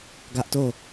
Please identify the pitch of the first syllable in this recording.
high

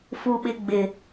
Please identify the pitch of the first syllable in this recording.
high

